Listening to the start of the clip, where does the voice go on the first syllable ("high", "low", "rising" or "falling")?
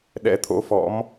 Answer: rising